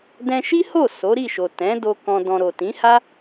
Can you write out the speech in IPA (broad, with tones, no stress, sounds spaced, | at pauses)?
d ɛ̃˧ ʃ i˦ h o˦˨ s o˨˦ ɾ i˦˨ ʃ o˨ t ɛ̃˨˦ d o˧ k ɔ̃˧ d ɔ̃˧ ɾ o˨ t ĩ˨˦ h a˦